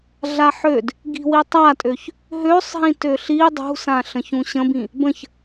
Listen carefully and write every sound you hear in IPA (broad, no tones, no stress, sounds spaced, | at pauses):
ɮ a ħ ø d | ɡ i̤ w i tˤ a tʼ ø ç | ɦ ø sˤ ɦ ĩ t ø ɬ i dˤ ṳ s ã ɬ ə̃ ç ũ ɕ ə̃ b ĩ | b ə̃ ç